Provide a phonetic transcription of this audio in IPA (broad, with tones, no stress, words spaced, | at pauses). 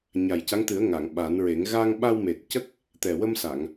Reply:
ɲa˨˩jca˧˥ŋt̪ɨ˨˩˦ə̯ ŋa˨˩˨ŋ ɓa˨˩˦nɹe˨˩˦ŋ ɣa˧ŋɓa˧wme˨˩t̚cə˦˥k̚ | t̪ɛ˨˩wə˧msa˨˩˨ŋ